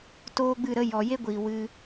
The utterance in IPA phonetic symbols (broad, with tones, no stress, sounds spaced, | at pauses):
t oː˦ ɡ͡b ɨ˦˨ ɾ ə˦ j ɔ˨ j e˦ ɡʷ iː˨ w ɨ˧